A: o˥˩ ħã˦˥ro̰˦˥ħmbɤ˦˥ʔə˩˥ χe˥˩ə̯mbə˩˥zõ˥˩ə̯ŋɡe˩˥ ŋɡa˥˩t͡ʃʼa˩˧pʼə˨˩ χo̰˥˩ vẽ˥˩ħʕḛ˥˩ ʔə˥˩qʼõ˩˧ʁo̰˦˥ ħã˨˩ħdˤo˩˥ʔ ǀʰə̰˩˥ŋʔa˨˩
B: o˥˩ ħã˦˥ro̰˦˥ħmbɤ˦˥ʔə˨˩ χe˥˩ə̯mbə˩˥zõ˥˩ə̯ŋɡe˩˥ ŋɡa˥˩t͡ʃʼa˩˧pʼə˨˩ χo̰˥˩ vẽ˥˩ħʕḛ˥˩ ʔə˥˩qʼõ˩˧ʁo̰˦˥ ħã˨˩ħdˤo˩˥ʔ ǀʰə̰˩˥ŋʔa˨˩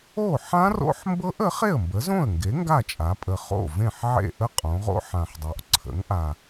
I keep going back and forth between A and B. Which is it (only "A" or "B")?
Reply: A